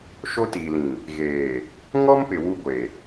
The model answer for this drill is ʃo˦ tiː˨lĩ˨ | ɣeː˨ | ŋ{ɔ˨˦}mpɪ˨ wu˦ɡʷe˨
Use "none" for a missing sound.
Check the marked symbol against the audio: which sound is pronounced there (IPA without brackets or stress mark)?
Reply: ɔ˦